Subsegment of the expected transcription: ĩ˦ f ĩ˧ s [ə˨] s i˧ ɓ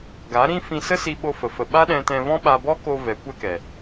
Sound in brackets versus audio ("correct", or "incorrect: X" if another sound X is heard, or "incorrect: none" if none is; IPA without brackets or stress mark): incorrect: ə˦